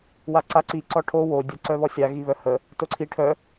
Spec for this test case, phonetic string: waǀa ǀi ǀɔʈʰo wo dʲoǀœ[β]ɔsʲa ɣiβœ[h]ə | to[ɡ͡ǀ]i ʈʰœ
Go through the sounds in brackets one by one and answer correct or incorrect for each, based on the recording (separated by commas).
correct, correct, incorrect